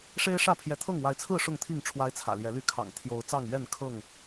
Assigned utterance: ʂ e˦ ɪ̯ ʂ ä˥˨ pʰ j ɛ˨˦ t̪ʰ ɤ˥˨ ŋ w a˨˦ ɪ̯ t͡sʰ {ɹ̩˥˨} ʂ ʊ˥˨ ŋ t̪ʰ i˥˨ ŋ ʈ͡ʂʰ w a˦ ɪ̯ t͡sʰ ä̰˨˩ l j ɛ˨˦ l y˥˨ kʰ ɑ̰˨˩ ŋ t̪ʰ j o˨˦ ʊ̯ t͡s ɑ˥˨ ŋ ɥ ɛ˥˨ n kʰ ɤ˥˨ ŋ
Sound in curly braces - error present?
no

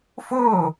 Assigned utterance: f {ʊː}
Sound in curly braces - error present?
no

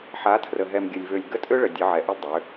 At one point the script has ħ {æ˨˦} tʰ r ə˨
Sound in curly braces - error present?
yes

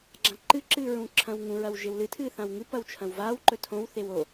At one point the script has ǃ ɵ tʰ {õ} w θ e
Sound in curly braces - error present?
no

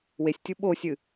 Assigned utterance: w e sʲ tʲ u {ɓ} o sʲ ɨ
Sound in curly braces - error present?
no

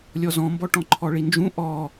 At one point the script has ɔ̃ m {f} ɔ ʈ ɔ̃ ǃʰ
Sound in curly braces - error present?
yes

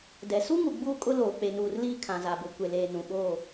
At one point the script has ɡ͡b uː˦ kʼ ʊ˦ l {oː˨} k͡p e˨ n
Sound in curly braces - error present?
no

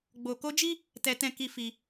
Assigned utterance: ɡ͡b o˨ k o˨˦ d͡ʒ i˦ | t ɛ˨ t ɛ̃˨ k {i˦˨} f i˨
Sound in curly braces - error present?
yes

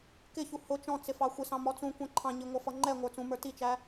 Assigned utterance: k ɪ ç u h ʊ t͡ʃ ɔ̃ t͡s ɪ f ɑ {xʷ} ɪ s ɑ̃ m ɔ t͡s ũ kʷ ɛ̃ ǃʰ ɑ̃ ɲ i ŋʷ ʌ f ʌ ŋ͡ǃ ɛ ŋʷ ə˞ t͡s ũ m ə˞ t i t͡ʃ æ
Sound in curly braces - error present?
no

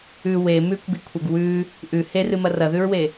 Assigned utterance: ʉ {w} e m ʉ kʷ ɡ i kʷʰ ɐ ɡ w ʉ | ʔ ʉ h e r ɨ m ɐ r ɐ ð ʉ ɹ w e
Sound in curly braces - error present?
no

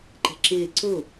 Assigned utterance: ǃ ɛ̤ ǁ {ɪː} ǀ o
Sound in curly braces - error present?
no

